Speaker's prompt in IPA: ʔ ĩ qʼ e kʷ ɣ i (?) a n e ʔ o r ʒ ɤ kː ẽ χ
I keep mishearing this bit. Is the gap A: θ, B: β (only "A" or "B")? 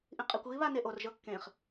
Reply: B